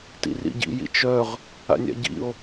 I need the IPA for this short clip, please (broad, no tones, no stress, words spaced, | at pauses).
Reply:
tḭrḭɟḭ jḭt͡ʃœʁ | a̰nʲa̰ɟḭo̯